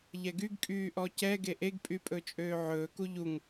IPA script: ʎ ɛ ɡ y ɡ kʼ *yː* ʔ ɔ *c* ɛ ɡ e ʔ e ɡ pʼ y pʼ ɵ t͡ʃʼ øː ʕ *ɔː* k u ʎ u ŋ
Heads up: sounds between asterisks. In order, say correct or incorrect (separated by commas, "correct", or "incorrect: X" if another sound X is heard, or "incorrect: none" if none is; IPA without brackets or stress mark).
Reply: correct, correct, incorrect: ɵː